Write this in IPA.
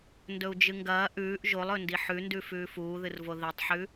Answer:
n d ɵ u̯ d͡ʒ ɨ ŋ ɡ ɐː ʔ ʉː ʔ ʒ o lˠ ɵ n d i ħ ʉ n d ʉ f ʉː f uː ð ɨ r v o ð i tˤ ħ ʉ

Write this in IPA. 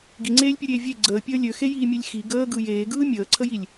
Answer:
ɡ i ŋ͡ǀ eː lʲ pʲ u ɾʲ eː vʲ e ɡ͡ǀ əː pʲ əː lʲ ø x e j iː mʲ e lʲ x i ɡ əː ɡ ɯ j eː ɡ ɯː mʲ əː ǀʰ ə j i lʲ

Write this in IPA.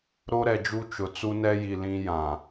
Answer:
ɾ o˦ ɾ ɛ˨ d͡ʒ u˦ t͡ʃ ʊ˨ t͡s u˦ n ɛ˦ j i˨ l ĩ˦ j ã˨

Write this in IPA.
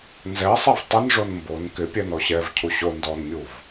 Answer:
n z ɛ sˤ ɛ v tˤ ɪ n ʐ o n m b o n k ɪ pʲ ɛ n ɔ ɕ ɛ v cʰ u ɕ o n d ɔ n mʲ u v

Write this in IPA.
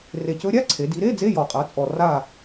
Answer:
r e˨˩ c ɵ˧˥ ɾʲ a˧˥˧ ǀʰ e˩˧ d i˩˧ ɾ e˧˥˧ d͡z e˧˥˧ j ɔ˨˩ qʼ a˩˧ t͡sʼ ɔ˨˩ r a˦˨

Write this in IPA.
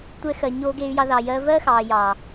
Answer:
tʷ ɛ˧ x ɜ˨ ɲ oː˧ ɡ eː˧ y̯ j ɑ˧ ð ɑ˨ j ɜː˧ v ɜ˦ x ɑː˨ j ɑː˨

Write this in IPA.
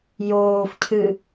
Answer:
j oː f cʰ ɨ

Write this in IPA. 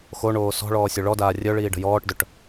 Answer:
x o ɳ oː s ɔ̤ ɭ ɔː sʲ o ɭ ɔ d aː rʲ œ ɭ iː ɖ ə̤ j ɔː ʈ d œ ʈ

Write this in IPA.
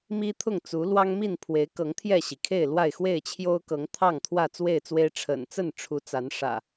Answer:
m i˦ t̪ʰ ʊ˥˨ ŋ t͡s u˨˦ l w ɑ˦ ŋ m i˥˨ n pʰ w e˨˦ ɪ̯ k ɤ˨˦ ŋ t̪ʰ j ɛ˥˨ ɕ i˩ kʰ e˥˨ ɪ̯ l w a˥˨ ɪ̯ x w e˥˨ ɪ̯ t͡ɕʰ j o˦ ʊ̯ k ɤ˨˦ ŋ t̪ʰ ɑ˥˨ ŋ t̪ʰ w ä˥˨ t͡s w e˥˨ ɪ̯ t͡s w e˦ ɪ̯ ʈ͡ʂʰ ə̰˨˩ n t͡s ə˥˨ n ʈ͡ʂʰ u˨˦ t͡s a˨˦ n ʂ ä̰˨˩

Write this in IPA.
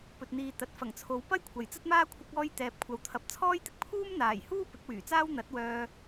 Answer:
p ɵ˨ t̚ n̪ iː˨ t̪ ɐ˨ t̚ f ɐ˨˩ ŋ t͡sʰ o˨˧ w p ɐ˥ j kʷʰ ɐ˨ j t͡s ɐ˥ t̚ m aː˥ kʷʰ ɐ˧ k̚ ɔː˧ j t̪ ɛː˨ p̚ kʷʰ ɐ˨˧ w t̪ʰ ɐ˨˥ p̚ t͡sʰ ɔː˥ j t̪ ɪ˥ k̚ pʰ uː˥ m n̪ aː˨˩ j h uː˥ p ɪ˨˥ k̚ w yː˨˩ t͡s aː˥ w n̪ ɐ˨˥ t̚ w œː˧

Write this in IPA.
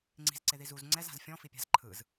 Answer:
ŋ͡ǀ i̤ z ǀ e ð i z u z ŋ͡ǀ ɛ z a̤ z fʲ ɔ̃ f i pʲ a̤ z ǃʰ ɯ z

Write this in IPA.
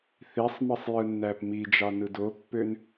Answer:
θ i sˤ m ɯ sˤ j ɯ nː æ p m i d͡ʒ ɑ n ɯ d o pː ø n

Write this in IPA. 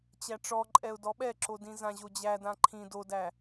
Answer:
t͡ɕ æ ʈ͡ʂ ɔ ǃʼ ɛ ʊ̯ d ɔ ɓ ɛ ǁ o d ĩ z ã ʑ o d͡ʑ æ d ã ǃʰ ĩ d o d æ

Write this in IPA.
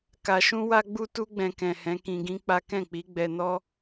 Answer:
k a˧ ʃ ũ˦ w a˦ ɡ͡b u˦ t u˦ ɡ͡b ɛ̃˧ k ɛ̃˨ h ɛ̃˨˦ k ĩ˧ ɡ ĩ˦ k͡p a˦ k ɛ̃˦˨ k͡p i˨˦ ɡ͡b ɛ˧ n ɔ˦

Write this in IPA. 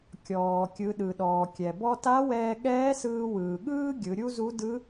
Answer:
kʲ ɔː˩ kʲ ɯ˩˧ ɗ ɯ˩ ɗ ɔː˩ kʲ ɛ˩ b ɔ˧ t a˧˥ w ɛː˧ ɠ ɛː˧˥ s ɯː˧ w ɯː˩ ɠ ɯː˥ ɡʲ ɯ˩˧ ɾʲ u˥ z u˧˥ d ɯ˧˥

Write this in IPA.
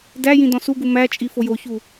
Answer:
d æ j ĩ d ɔ̃ s u ɡ u m æ t͡ʃʼ i f o j o ç u

